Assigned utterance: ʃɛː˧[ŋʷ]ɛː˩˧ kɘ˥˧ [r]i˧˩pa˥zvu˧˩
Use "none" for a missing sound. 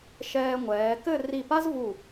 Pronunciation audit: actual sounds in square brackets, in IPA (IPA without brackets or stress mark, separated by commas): ŋʷ, r